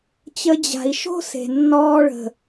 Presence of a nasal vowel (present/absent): absent